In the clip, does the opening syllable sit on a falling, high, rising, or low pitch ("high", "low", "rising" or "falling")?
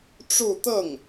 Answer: falling